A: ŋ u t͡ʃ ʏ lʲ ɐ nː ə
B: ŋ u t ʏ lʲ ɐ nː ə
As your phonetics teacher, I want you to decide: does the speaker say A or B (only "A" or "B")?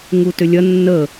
B